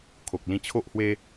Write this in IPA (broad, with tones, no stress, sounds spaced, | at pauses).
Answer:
kʰ o˨ k̚ l ĩ˧ t͡ɕʰ o˦ ʔ h w e˦